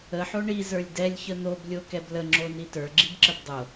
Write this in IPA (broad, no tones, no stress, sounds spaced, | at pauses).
ə ħ o ɳ i z ə˞ lʲ d ɛ lʲ ç ə n̪ o b lʲ o k ɛ b l ə ŋ͡ǁ o n i t ə˞ ɡ͡ǁ i b ǁ ə b dˤ o